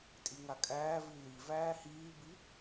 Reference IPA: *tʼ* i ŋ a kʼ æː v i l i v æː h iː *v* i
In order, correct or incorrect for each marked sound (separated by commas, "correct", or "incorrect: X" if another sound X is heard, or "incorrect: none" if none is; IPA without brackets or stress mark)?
correct, incorrect: b